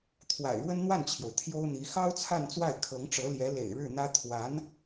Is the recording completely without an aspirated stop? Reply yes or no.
no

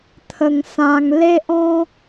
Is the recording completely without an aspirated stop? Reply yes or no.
no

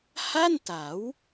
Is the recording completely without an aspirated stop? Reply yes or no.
yes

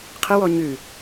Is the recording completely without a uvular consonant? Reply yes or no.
no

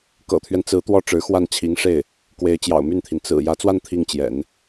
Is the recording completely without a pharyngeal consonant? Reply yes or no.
yes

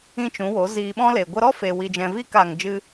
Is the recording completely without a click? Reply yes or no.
yes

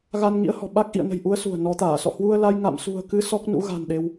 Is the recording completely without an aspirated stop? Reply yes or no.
yes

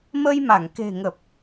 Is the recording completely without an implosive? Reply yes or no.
yes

